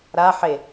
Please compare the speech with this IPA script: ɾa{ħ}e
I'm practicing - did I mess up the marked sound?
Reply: no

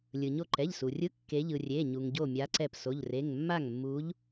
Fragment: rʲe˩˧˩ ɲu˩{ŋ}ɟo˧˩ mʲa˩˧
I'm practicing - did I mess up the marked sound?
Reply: no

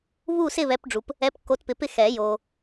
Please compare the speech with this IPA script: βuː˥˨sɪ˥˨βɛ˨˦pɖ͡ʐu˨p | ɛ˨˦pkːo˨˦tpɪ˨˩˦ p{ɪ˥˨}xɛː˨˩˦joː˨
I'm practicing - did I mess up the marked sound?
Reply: no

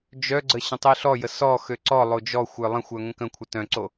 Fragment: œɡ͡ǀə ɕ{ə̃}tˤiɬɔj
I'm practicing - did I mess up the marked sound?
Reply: no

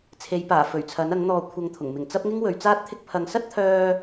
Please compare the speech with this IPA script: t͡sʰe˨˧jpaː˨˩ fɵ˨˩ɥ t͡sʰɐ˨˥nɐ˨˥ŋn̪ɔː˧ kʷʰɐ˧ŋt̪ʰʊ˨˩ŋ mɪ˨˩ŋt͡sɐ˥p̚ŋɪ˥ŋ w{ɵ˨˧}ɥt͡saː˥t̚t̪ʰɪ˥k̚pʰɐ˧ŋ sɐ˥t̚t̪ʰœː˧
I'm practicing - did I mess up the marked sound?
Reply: no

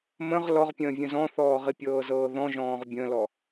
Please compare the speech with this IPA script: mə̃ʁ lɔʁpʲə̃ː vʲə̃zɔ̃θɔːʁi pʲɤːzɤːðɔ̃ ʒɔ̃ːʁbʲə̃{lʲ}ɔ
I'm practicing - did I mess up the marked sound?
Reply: yes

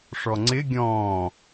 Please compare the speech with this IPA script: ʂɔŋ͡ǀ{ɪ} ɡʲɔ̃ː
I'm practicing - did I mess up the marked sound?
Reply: no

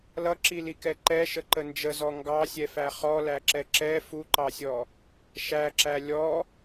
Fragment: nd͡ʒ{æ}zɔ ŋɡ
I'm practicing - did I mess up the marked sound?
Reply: yes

